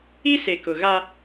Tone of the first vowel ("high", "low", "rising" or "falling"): high